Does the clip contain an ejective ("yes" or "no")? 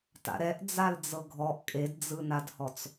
yes